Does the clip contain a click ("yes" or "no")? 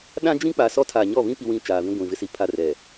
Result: no